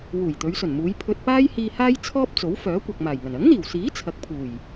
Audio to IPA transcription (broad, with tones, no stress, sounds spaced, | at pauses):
w uː˨˩ j t̪ ɵ˨˧ ɥ s ɵ˨˩ n m uː˨˧ j pʰ ɵ˧ t̚ p aː˥ j h iː˧ h aː˥ j t͡sʰ ɔː˥ p̚ t͡s o˨˥ w f œː˨˥ kʷ ɐ˨ k̚ m aː˨˩ j ŋ ɐ˨˩ n ɐ˨˥ ŋ n̪ iː˨˩ w s iː˨˥ t͡sʰ ɐ˨˥ k̚ pʰ uː˨˩ j